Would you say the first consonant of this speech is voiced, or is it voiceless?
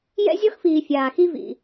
voiced